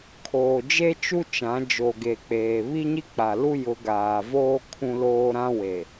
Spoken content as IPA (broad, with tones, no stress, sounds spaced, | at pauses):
kʰ oː˨ d͡ʒ e˦ t͡ʃ u˦ t͡ʃ ã˨˦ d͡ʒ o˨ ɡ e˨ k͡p eː˨ β i˦ ɲ i˦ k͡p a˨ l u˦ j ʊ˨˦ ɡ aː˨ v oː˦ kʰ ũ˦ l oː˦ ɾ ã˦ w e˨